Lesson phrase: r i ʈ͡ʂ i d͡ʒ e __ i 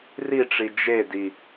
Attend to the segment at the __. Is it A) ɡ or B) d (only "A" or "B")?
B